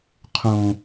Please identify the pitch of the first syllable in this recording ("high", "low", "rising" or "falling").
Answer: low